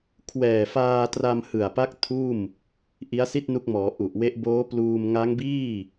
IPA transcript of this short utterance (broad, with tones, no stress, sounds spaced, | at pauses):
kʰ w ɛː˨˩ f aː˧ t r a˧ m h ɯ˨˩ a̯ p a˦˥ k̚ tʰ uː˥˩ m | ʔ i˦˥ a̯ s i˥˩ t̚ n u˦˥ k̚ m ɔː˩˦ ʔ u˨˩ ʔ w e˦˥ ʔ b oː˦˥ p l uː˧ m ŋ a˦˥ ŋ b iː˥˩